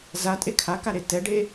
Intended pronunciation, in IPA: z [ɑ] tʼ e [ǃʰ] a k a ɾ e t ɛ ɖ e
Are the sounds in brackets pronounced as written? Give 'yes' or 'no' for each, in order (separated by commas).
no, no